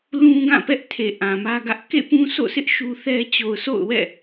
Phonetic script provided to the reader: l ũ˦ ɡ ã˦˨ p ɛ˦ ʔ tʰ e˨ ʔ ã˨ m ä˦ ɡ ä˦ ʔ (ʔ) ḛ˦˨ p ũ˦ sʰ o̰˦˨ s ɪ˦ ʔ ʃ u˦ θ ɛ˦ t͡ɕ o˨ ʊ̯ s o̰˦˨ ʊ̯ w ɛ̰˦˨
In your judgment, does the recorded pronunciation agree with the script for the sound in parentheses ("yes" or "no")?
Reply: no